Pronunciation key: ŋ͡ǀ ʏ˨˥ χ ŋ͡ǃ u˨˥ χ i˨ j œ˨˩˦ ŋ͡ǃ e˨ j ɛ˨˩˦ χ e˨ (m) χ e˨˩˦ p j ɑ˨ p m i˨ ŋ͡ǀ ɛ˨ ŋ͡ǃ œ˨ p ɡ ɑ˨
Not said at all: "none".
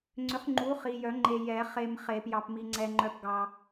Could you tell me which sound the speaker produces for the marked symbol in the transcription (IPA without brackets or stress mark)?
m